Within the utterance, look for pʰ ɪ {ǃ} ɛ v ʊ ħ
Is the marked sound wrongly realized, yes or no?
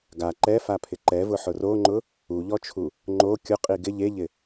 no